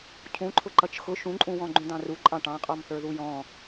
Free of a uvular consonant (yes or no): no